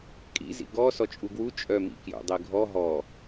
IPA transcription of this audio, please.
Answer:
kʼ ḭ z ḭ ɡ ɔ s ɔ t͡ʃʼ u ɡ w u t͡ʃʼ œ m ḭ k j ṵ dˤ i ɡʱ ɔ ɦ ɔ

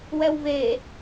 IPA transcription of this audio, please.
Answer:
w ɛ w v e

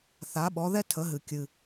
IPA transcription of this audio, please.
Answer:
θ a˩˥ ɓ ɔ˩˥ ð ɛ˥ tʰ ə˩˥ ɦ ɨ˩ kʲ ɨ˩

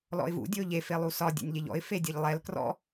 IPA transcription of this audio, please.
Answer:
l ɔ̰ ɪ̯ v ṵ dʲ ɵ ʊ̯ ʎ e f e lˠ u s ɒ dʲ ḛ nʲ ʎ e ʎ ɔ̰ ɪ̯ f e dʲ e ʎ lˠ ɛ l k r ɔ̰

